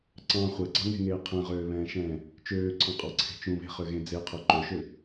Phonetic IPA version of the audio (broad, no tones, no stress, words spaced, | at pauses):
ǀɑ̃ χʷɛɡ͡ǀɑŋe̤ŋeː qʰɛ̃ʁøːβɛ̃ːʃɛ̃ː | t͡ʃøːǀʰɑ̃qʼɑǀʰe̤ t͡ʃũβe̤χøɣẽ d͡zeqʰø ǃøʃø